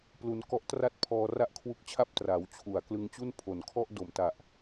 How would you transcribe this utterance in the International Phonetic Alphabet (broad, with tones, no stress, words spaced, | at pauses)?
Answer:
plu˧n kɔ˦˥ʔtra˥˩t̚pʰɔː˧ ra˥˩ʔkʰwu˦˥k̚t͡ɕʰa˥˩p̚ tra˩˦wt͡ɕʰu˩˦a̯ klɯ˧ŋt͡ɕu˥˩npʰo˨˩nkʰɔ˥˩ʔ do˨˩mta˨˩ʔ